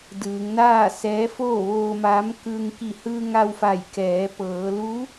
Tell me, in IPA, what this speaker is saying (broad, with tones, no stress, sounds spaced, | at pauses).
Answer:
d ɯː˩˧ ŋ n aː˥˨ s ɛː˧˥ f oː˥˨ ʋ oː˧ m aː˧˥ m k ɯː˧ ŋ k i˧˩ h ɯː˧ ŋ a˧ w f a˧˩ j k ɛː˩˧ p ɤː˩˧ l u˧˥